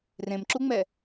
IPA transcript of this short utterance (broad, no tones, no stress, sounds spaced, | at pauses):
r ẽ m ǁ u ŋ͡m ɛ